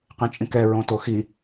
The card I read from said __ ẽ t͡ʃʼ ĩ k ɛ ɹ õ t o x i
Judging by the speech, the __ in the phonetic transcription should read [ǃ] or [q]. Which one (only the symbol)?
q